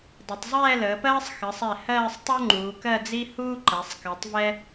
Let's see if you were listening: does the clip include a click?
yes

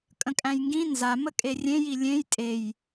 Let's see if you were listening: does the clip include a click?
no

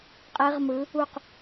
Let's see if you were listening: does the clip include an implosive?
no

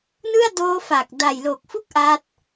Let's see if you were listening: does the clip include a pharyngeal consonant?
no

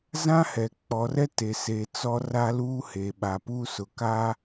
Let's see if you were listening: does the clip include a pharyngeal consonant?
no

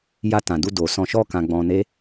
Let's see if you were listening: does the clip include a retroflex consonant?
no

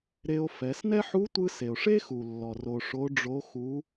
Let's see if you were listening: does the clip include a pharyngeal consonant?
yes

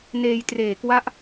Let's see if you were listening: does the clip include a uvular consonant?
no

